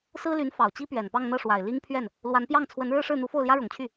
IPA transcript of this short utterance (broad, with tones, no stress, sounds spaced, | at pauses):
s ɹ̩˥ l y˧˥ n f ɑ˨˩ ʊ̯ t͡ɕ i˥ p ɥ ɛ˨˩ n p ɑ˥˧ ŋ n̪ ɤ˥˩ ʂ w a˨˩ ɪ̯ l i˥ ŋ pʰ ɥ ɛ˥˩ n | l w a˧˥ n p j ɑ˥˩ ŋ t͡sʰ w ə˧˥ n ɻ ɻ̩˥˧ ʂ ɻ̩˥˩ n̪ u˧˥ f o˥˩ ʊ̯ l j ä˥ ɻ ʊ˨˩ ŋ t͡ɕʰ y˥˩